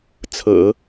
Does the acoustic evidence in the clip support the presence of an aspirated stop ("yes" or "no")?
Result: yes